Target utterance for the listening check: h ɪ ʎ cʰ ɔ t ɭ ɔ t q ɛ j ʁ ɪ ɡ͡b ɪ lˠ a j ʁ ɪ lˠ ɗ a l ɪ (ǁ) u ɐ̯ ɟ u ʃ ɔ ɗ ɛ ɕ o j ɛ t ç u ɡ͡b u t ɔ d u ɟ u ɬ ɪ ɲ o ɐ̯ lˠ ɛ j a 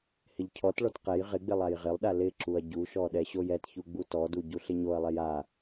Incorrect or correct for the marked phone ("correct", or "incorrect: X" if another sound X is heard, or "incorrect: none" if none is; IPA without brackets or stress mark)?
correct